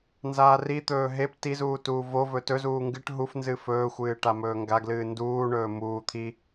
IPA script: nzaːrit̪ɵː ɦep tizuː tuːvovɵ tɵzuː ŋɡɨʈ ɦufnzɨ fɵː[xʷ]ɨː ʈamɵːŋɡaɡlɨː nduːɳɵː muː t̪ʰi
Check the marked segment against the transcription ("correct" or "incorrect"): correct